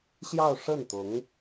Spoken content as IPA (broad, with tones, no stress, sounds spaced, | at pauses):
ɕ j ɑ˥˧ ʊ̯ ʂ ə˥˩ n t̪ ʊ˧˥ ŋ